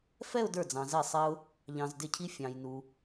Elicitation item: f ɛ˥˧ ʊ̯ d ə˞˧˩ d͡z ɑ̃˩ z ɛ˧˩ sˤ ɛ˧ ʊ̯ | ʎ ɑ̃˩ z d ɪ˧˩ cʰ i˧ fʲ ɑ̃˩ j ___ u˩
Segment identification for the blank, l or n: n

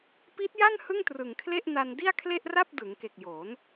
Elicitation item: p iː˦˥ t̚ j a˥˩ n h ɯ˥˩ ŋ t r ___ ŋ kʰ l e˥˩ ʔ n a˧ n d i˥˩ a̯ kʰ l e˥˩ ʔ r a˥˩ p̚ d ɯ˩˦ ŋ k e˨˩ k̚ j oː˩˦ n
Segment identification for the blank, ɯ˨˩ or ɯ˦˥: ɯ˨˩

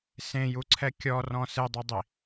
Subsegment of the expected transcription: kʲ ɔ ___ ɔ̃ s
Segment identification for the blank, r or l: r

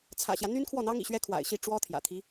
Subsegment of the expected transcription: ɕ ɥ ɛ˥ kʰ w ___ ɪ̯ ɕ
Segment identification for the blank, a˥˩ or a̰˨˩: a̰˨˩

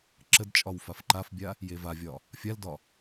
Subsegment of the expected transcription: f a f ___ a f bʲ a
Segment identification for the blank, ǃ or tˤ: ǃ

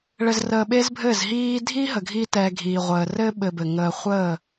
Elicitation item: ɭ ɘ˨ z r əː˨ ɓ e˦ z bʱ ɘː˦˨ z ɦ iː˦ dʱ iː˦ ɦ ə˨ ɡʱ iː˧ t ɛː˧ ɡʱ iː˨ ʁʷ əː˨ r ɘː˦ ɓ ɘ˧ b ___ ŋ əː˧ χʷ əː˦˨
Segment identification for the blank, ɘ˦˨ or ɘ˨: ɘ˨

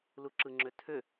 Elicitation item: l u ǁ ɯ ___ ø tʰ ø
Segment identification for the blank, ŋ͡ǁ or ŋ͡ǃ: ŋ͡ǁ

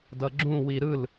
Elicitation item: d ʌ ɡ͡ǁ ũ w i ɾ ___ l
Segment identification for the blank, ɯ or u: ɯ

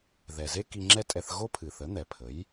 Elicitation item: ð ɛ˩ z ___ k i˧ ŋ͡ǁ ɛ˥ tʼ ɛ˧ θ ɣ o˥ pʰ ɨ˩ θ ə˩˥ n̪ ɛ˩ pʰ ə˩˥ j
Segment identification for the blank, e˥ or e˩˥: e˥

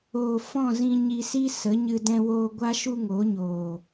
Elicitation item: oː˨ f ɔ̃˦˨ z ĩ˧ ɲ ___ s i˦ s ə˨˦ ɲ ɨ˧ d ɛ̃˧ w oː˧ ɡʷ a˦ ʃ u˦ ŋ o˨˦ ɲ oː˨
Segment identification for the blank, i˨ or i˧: i˧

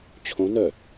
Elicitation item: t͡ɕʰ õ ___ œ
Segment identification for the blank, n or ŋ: n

